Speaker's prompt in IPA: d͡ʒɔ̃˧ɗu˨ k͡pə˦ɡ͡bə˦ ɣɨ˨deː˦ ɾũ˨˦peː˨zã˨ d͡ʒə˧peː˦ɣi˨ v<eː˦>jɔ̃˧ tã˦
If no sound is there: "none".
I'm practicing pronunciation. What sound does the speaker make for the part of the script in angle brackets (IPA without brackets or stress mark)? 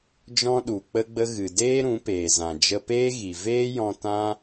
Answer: eː˦